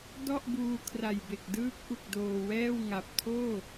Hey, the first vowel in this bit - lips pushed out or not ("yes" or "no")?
yes